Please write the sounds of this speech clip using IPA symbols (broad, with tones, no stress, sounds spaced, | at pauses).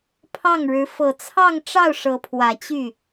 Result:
pʰ ɑ˥˩ ŋ ɻ ɻ̩˧˥ f ɤ˨˩ t͡sʰ ɑ˥˧ ŋ ʈ͡ʂ ɑ˥˩ ʊ̯ ʂ ɤ˧˥ pʰ w ä˨˩ t͡ɕ y˥˩